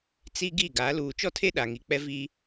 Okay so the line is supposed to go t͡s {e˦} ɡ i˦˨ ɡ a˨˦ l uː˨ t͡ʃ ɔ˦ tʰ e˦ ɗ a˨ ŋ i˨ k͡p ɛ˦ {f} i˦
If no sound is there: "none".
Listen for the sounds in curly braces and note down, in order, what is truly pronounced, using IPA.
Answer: i˦, v

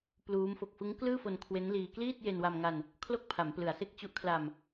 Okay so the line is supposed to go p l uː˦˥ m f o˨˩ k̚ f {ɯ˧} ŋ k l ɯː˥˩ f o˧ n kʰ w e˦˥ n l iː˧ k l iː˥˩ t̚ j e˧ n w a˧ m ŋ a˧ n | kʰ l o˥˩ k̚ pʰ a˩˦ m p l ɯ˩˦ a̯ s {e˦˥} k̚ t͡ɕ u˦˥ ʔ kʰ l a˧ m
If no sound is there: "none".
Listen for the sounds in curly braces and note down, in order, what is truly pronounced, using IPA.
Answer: ɯ˦˥, e˦˥

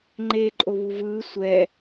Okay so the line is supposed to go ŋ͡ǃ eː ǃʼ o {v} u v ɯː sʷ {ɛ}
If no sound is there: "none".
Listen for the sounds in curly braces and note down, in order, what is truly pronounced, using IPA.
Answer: β, ɛ

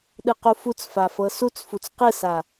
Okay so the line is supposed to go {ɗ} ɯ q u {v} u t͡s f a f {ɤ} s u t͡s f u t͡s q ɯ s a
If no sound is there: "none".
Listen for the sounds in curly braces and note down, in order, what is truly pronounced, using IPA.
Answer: ɗ, f, ɤ

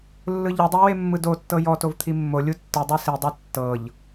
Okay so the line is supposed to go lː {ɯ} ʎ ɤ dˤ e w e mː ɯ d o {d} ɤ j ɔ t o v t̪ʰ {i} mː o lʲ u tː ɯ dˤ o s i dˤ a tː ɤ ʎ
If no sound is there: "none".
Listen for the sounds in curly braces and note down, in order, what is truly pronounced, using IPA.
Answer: ɯ, tː, i

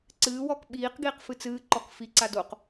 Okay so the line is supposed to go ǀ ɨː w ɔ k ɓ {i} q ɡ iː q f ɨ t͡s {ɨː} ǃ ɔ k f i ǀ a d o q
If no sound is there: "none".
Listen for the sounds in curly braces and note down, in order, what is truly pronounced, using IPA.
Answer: iː, ɨː

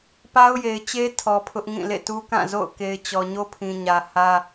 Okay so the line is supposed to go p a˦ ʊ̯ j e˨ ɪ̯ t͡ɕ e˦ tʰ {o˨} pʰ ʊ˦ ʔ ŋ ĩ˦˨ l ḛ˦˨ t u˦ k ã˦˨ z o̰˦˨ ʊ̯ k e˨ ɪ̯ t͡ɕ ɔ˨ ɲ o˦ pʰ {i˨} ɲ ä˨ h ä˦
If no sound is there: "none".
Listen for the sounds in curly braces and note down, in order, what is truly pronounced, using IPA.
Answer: ɔ˨, ĩ˨

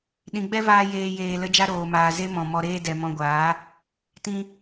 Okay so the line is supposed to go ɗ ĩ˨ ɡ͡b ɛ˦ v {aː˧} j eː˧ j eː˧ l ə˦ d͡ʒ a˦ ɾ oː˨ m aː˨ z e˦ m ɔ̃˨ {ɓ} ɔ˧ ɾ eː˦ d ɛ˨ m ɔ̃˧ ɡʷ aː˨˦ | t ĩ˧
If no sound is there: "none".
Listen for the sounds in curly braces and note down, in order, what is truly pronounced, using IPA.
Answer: aː˧, m

